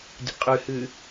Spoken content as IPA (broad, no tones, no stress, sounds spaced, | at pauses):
dʲ ə̰ qʼ ʉ h ʉ